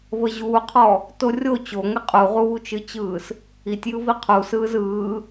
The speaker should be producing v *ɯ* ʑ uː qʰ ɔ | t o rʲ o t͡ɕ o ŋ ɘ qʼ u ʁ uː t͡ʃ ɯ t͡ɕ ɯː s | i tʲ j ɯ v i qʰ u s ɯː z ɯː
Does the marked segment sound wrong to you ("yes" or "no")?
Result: yes